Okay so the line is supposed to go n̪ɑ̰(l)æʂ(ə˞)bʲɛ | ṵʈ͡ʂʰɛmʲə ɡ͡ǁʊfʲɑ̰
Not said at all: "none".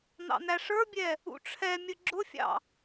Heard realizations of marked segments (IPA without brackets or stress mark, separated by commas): n̪, ə˞